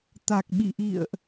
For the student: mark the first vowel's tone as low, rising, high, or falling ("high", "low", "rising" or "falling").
low